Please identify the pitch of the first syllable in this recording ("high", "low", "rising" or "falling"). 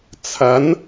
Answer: rising